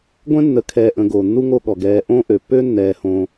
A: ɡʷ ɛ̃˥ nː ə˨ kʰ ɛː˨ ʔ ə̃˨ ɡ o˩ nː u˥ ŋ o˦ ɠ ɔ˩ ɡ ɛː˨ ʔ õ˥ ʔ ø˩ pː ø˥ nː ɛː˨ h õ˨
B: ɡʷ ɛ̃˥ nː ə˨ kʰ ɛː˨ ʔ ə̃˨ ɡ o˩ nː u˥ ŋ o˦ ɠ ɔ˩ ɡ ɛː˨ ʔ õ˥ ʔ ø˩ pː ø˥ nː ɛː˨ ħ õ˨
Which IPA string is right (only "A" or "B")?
A